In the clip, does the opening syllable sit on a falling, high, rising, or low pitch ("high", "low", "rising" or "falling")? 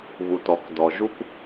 low